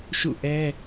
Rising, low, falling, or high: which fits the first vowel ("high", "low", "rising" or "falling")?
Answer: falling